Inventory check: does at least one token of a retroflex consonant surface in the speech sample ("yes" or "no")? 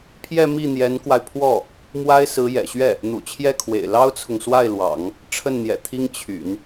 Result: yes